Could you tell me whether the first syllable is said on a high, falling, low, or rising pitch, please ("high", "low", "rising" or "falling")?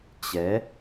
rising